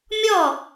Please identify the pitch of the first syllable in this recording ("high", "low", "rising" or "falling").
falling